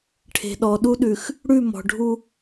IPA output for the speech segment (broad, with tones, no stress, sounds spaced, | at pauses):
ʈʰ e̤˨ ɗ ɔ˨ ɗ u˦ ɗ ʉ˨ x | ɽ ʉ˦˨ m ɔ̤˨ ɖʱ u˦